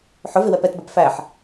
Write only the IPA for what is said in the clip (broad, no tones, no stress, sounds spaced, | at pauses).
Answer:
ħ ʊ v ɪ w ɛ p ɛ t b æ p f æ ħ